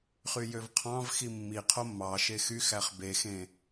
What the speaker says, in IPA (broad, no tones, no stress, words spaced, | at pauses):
χyjøvqʰɑ̃vxi mːi qʰomːɑʃe xy xæχbexẽ